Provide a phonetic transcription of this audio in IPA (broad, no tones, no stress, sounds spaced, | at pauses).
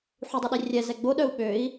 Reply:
ħ u dˤ y ɗ i rʲ ɛ z ɛ ɡ͡b o ɗ œ u̯ ɓ ø i̯